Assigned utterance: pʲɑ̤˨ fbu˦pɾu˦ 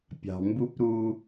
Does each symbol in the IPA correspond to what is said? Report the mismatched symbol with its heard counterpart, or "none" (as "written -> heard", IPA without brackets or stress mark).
f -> m